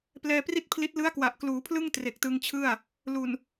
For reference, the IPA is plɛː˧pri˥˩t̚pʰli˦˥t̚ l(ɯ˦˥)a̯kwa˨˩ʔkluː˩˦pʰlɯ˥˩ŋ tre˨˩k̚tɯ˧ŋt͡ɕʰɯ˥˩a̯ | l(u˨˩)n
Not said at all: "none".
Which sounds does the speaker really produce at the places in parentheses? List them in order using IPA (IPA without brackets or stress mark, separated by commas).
ɯ˦˥, u˨˩